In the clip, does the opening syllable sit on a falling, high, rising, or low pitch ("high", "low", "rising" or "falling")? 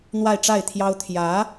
falling